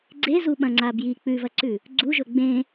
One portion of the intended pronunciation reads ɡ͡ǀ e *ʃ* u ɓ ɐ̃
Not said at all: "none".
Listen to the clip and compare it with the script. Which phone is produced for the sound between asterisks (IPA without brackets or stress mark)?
z